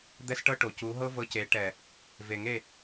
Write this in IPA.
d̪ ɛ˦ s ʈ ɤ˦ ʈ o˨ c u˨˦ ɦ ɤ˦ v ɤ˧ c e˨˦ ʈ ɛ˨ | v e˨ ŋ e˦˨

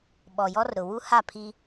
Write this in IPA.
ɓ ɔ˨ j ɔ˦ r ɾ ʊ˨ w u˦ h a˦˨ pʰ i˦

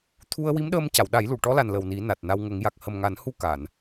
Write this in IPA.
t̪ʰ u˧ ə̯ w i˧˥ m ɗ əː˧ m c a˨˩˨ w ɗ a˨˩˦ j l u˨˩˨ ʈ ɔ˧˥ l a˨˩ n l ə˨˩ w n i˨˩˦ n a˨˩ t̚ n a˧ w ŋ ə˨˩˦ ŋ j a˨˩ k̚ h ə˨˩ m ŋ a˨˩˦ n h u˧ k a˨˩˨ n

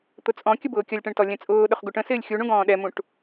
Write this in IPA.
t̪ ʊ t͡sʼ ɔ̃ kʲ ə b ʊː kʲ ʌ lʲ ʈ ɛ̃ ɳ t ɔ lʲ ɛ̃ t͡sʼ ʊː ɗ ʊ χ ɡ u ʈ ə̃ s ɪː lʲ xʲ u ɳ ũ ɡ ɔ̃ː ɗ ɛ m ũ ʈ

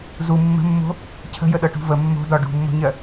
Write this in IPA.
z u mː ə̤ mː o̤ | cʰ ə̤ j ə ɗ ɤ ʈ ṳ v ə mː o̤ d ɒ ɖ ṳ mː o̤ ɲ ɜ

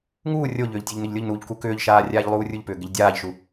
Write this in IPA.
ŋ uː rʲ o ʎ ʏː ʎ tʲ o ʎ n ʏ ʎ lʲ o ʎ n uː ʎ k u k ʏː ʎ ʃ aː rʲ aː ʎ lˠ uː rʲ u ʎ p ʏː ɡ ɪ ʎ dʲ aː ʎ ʃ u

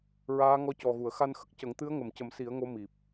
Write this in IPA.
ɹ aː˧˥ ŋ ɔ˧˥ c ɔ˨˩ ɣ u˨˩˨ ə̯ x a˧ n x ə˦˥ k̚ c ə˨˩˦ ŋ t̪ ɨ˧˥ ə̯ ŋ ə˨˩˨ m c ə˨˩˦ m s i˨˩˦ ə̯ ŋ o˧˥ m i˨˩ p̚

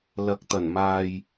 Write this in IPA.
l ɐ˨˥ k̚ t̪ ɐ˨˩ n m aː˨ j

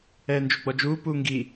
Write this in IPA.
ɛː n d͡ʒ u ɡ͡b ɔ d͡ʒ uː p uː ŋ ɡ i

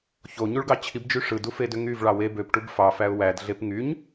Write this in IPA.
ç o ɲ u ɭ ɡ ɑ t͡ɕʰ i b d͡ʒ y ʂ ɯ d u f e d ø ŋ y v ɭ ɑ w e b ø p ʈ u b f ɑ f æ ʊ̯ w æ d ɮ e p ŋ y ɲ

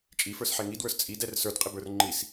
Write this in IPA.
t͡ʃʼ i f ə˞ s ħ ɛ ŋ i d w ə˞ s t͡sʼ i d ɛ r s ə˞ d qʼ ɪ b ə˞ r ŋ͡ǃ i s

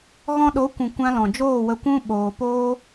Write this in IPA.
ɣ ɔ̃˧ ɗ o˨˦ kʷ ũ˨ kʷ ã˧ l ɔ̃˨ d͡ʒ oː˦˨ w ə˧ kʷ ũ˦ ɓ oː˧ p oː˦

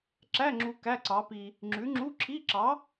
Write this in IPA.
ǁ æ˧˥˧ ŋ͡ǁ u˧ k æ˧˥˧ ǀ ɑ˨˥ p i˧ | ŋ͡ǁ ʉ˨˥ ŋ͡ǁ u˧˥˧ ǁʰ i˧˥˧ ǁ ɑ˨˥

